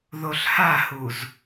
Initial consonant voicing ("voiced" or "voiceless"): voiced